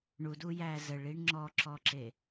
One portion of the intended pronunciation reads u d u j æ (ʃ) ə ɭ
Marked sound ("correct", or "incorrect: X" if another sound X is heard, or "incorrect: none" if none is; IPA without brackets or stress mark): incorrect: z